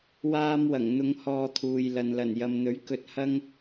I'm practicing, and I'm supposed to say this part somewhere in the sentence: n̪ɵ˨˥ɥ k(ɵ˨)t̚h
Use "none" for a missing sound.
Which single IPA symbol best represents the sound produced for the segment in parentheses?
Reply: ɵ˧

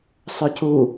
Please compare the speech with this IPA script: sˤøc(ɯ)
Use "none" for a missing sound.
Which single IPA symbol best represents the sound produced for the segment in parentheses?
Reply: u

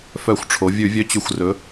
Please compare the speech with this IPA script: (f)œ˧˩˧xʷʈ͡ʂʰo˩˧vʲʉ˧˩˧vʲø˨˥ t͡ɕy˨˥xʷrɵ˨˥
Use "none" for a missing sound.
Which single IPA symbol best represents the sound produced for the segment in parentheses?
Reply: f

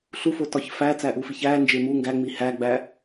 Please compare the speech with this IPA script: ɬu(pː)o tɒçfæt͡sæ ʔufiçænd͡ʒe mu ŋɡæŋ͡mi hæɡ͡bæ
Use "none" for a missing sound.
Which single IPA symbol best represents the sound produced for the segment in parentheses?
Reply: f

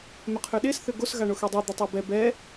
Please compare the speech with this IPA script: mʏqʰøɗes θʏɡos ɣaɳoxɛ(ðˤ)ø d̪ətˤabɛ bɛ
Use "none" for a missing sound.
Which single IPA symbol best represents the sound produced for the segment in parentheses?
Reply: dˤ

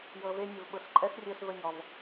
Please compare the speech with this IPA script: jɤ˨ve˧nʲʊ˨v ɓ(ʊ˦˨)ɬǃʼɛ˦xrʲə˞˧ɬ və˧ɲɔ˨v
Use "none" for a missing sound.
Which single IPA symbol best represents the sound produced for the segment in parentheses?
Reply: ʊ˨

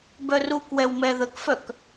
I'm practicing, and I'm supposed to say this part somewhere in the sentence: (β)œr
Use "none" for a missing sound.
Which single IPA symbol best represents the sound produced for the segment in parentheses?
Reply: b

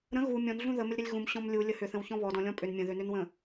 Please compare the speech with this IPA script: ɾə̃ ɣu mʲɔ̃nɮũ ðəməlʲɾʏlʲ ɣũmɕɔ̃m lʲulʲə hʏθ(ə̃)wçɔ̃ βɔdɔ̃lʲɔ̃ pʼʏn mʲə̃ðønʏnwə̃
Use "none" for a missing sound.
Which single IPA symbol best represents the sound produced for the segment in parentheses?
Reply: ə̃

